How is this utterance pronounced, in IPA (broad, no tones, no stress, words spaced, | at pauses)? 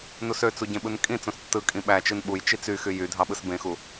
nusøt͡su ɟẽɓɯnkʼĩt͡sõs tːɯ kʼĩɓæt͡ʃɯn ɓujt͡ʃi t͡syxy jy dʱɑɓɯsbẽxu